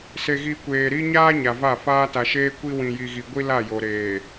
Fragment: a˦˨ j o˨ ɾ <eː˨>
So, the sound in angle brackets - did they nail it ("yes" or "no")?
yes